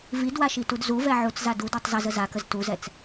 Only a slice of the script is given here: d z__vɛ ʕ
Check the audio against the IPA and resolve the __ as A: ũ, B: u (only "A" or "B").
B